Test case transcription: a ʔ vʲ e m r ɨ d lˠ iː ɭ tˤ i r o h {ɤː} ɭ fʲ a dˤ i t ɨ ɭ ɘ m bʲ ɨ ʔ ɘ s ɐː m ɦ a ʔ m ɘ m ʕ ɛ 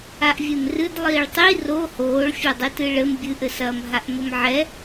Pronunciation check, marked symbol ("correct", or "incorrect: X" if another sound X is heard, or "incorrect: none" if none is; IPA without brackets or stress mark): incorrect: oː